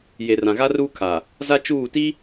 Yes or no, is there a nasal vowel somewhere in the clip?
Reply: yes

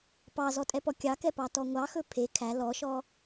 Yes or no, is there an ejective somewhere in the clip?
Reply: yes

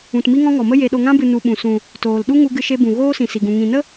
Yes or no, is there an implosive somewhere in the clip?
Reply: yes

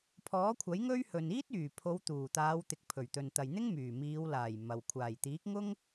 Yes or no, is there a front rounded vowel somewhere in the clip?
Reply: yes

